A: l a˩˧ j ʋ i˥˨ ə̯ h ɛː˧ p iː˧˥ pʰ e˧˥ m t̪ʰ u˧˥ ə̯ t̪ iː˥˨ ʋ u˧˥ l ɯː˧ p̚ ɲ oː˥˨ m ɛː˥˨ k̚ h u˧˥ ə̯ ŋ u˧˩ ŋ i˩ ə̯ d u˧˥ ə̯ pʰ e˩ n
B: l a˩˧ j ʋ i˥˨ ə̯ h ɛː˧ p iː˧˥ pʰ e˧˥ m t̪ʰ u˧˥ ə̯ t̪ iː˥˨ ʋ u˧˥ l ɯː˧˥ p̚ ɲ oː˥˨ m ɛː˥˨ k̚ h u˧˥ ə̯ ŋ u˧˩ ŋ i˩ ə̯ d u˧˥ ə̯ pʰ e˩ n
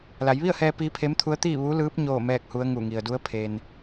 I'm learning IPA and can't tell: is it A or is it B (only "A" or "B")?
B